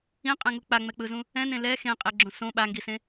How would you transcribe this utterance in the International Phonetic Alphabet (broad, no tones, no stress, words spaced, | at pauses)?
ĩqʼɛ̃ŋu k͡paŋ͡mɛk͡pɯzũ | ɛ̃nẽ lɛ xẽqʼeɡ͡ǁõ sõ ɓaŋɡisẽ